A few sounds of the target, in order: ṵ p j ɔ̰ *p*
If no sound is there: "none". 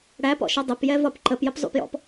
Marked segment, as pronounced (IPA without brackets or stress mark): p